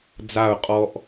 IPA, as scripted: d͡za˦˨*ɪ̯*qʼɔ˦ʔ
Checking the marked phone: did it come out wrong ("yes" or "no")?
yes